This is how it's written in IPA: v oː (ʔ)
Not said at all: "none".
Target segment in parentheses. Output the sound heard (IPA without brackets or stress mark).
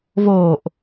ʔ